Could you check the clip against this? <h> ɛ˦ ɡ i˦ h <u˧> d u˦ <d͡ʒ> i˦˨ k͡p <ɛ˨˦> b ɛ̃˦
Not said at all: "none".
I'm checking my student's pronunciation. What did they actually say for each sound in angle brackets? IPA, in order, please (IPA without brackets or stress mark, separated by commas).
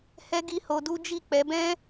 h, o˧, d͡ʒ, ɛ˨˦